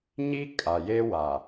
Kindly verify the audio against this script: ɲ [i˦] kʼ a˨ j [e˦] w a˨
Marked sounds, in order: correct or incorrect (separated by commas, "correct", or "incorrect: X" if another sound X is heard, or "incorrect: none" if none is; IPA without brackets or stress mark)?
correct, correct